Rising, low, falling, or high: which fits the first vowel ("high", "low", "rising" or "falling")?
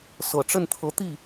low